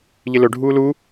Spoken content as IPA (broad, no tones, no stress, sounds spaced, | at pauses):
ʎ ɪ l ɵ ɖʱ uː l u